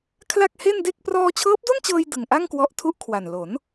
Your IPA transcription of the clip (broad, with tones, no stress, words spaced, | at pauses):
kʰla˥˩k̚he˥˩nde˥˩k̚ prɔː˧t͡ɕʰɤː˦˥p̚do˥˩nt͡ɕɤː˧j dɯ˨˩ŋʔa˥˩ŋ kwɔ˦˥ʔtʰu˥˩ʔkʰwa˨˩n lo˩˦n